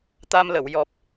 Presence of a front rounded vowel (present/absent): absent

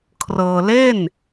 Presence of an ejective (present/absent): absent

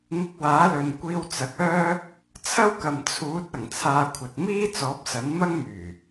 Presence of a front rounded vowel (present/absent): present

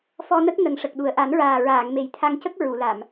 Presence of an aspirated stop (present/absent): present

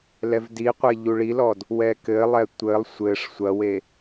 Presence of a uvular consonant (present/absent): present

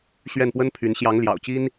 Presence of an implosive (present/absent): absent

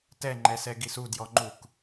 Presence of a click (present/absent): present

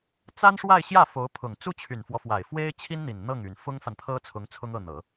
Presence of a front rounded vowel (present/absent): present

